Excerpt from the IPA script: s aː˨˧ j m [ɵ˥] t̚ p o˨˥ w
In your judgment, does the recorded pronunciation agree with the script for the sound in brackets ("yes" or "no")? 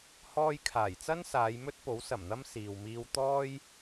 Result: yes